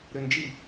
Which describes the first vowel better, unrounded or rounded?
rounded